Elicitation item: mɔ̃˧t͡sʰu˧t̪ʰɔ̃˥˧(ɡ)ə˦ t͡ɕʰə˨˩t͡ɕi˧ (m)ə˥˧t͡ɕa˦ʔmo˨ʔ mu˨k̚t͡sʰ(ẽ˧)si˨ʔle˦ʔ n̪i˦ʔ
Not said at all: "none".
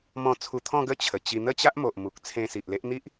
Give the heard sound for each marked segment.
ɡ, n̪, ẽ˧

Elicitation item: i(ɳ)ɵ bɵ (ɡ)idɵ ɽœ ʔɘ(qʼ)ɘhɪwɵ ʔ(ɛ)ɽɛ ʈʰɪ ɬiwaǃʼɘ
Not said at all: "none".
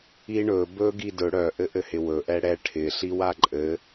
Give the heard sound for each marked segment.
ɳ, ɡ, ʔ, ɛ

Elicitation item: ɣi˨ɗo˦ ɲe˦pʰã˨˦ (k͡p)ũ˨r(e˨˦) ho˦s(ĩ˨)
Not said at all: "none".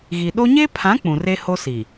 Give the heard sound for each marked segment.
k͡p, e˦, i˨

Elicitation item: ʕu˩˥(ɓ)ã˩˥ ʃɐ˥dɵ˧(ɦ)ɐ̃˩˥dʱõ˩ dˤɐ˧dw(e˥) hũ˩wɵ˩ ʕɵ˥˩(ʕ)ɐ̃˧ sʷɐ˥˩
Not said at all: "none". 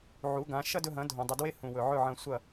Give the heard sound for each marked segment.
ɡ, ɦ, e˥, ʕ

